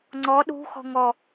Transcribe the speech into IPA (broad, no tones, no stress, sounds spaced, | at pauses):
ŋ͡ǀ ɔ ɗ ṳ x ɔ̤ ŋ ɔ